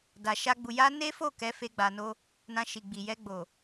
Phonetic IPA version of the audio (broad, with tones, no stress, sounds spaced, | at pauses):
d a˨ ʃ a˧ ɡ͡b u˨ j a˧ n e˦ f o˦˨ k ɛ˨˦ f e˧ ɡ͡b a˨ n o˧ | n ã˧ ʃ i˨ ɡ͡b i˨ j ɛ˧ ɡ͡b o˨